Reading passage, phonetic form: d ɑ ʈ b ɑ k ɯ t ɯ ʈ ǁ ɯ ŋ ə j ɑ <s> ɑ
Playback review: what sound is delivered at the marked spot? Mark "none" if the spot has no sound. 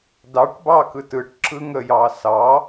s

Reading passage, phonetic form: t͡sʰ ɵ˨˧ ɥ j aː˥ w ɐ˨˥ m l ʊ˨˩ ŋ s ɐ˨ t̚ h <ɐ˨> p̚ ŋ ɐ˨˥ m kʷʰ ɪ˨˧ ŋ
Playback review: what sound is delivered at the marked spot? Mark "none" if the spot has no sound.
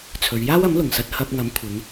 ɐ˧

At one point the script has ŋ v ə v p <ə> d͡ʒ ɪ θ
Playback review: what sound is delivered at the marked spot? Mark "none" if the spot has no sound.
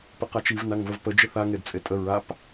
ə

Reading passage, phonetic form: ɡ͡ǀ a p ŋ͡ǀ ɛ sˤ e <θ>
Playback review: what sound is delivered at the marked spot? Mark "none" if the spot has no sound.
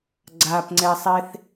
θ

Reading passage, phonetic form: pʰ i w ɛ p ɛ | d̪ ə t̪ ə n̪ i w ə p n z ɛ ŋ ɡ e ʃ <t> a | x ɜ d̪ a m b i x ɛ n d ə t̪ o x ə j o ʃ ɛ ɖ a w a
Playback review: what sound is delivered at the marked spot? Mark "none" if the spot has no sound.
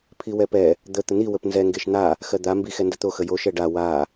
n̪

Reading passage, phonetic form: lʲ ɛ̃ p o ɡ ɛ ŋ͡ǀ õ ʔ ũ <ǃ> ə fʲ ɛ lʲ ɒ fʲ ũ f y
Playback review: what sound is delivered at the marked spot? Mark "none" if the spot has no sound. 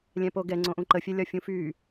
ǃ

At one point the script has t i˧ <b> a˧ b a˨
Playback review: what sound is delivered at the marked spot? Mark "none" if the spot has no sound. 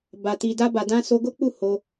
d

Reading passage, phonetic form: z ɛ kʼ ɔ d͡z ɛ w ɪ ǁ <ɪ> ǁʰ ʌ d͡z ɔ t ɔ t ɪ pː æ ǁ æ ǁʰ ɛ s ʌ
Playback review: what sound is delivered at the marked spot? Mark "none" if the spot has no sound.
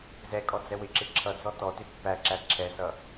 ɪ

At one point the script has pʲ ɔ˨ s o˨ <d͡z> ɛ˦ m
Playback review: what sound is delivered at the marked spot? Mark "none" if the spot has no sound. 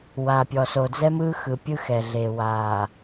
d͡z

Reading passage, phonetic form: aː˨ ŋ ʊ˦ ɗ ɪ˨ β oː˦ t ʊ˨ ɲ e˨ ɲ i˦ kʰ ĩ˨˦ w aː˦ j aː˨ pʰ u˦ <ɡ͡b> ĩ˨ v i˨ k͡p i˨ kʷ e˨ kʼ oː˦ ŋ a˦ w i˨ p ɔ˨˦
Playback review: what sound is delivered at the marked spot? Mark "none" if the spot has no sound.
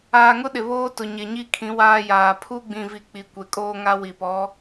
ɡ͡b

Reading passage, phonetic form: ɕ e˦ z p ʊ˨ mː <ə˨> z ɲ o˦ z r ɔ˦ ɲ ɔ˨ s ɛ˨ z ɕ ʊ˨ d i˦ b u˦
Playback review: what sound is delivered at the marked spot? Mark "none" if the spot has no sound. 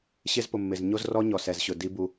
ɪ˨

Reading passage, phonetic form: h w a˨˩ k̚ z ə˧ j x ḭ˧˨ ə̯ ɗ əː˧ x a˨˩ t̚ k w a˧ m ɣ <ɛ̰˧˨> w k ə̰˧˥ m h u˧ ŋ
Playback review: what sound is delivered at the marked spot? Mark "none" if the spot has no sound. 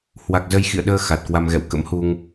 ɛ̰˧˨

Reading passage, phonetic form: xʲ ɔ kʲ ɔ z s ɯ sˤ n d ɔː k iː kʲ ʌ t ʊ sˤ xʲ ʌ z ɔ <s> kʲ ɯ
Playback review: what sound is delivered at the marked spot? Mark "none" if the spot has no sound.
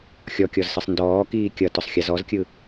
z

